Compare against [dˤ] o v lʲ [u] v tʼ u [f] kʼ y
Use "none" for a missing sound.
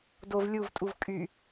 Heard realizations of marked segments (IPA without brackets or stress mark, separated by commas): d, u, v